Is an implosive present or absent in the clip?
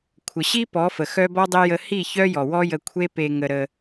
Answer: absent